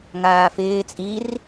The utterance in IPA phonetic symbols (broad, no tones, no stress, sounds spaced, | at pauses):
ŋ aː f ɪː t͡sʼ i r